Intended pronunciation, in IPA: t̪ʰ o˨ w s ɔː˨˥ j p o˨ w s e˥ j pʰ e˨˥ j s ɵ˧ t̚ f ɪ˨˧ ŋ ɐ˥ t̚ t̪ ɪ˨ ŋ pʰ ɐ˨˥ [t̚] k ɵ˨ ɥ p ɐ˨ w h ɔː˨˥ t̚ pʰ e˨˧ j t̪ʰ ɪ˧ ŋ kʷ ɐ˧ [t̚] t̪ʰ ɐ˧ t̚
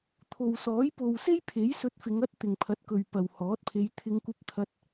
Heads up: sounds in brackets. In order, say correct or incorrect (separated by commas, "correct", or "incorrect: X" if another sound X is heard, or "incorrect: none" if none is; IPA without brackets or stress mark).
correct, incorrect: p̚